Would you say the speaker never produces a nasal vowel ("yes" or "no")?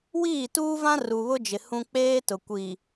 no